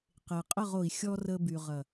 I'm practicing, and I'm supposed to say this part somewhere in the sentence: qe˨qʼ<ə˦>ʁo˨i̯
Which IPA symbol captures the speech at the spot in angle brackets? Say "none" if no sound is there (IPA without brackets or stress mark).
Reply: ə˦˨